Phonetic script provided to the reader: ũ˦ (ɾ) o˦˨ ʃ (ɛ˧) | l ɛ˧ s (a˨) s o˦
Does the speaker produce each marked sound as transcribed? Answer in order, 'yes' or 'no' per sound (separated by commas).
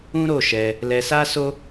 yes, yes, no